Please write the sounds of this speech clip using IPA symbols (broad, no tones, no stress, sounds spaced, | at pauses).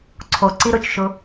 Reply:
ǀʰ o ǀ i ɾ ʊ t͡ʃ ʃ ʊ